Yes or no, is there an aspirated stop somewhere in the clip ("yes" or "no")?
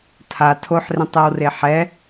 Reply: yes